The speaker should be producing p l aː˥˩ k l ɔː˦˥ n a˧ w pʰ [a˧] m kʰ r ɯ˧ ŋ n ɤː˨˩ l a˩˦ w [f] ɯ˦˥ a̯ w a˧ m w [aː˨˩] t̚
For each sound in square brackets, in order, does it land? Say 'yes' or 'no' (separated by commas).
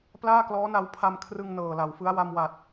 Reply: yes, yes, no